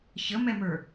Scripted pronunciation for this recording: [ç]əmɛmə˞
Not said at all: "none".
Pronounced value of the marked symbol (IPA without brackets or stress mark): ç